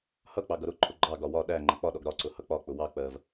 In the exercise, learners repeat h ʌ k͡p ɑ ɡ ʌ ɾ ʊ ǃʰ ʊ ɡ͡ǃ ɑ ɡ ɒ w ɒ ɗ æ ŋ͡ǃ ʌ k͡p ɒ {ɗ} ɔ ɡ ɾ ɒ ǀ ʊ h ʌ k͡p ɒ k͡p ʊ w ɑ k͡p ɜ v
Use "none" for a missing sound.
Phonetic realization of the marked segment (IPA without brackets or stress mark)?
ɗ